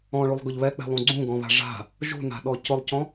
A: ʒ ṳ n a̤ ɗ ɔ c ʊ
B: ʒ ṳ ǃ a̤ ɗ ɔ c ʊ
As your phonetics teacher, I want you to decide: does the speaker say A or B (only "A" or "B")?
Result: A